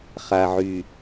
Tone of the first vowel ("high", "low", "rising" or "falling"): low